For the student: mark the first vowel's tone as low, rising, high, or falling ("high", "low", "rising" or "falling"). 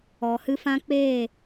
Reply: low